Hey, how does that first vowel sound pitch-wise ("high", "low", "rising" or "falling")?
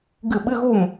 falling